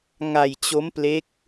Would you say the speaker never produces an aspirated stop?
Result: yes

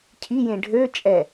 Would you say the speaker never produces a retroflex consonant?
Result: no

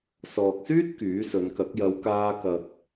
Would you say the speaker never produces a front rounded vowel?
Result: no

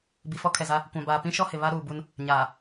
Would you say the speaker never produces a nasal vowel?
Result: no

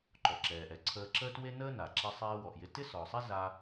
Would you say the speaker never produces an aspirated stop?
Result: no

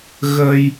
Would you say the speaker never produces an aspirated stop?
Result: yes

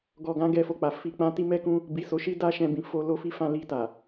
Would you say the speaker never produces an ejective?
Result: yes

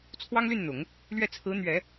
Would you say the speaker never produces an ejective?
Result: yes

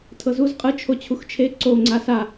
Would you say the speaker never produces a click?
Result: no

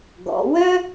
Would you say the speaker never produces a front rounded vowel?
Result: no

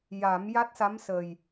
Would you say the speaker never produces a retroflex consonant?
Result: yes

